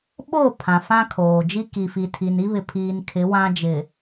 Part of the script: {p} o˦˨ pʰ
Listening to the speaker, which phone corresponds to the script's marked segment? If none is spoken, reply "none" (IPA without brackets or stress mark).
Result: ɓ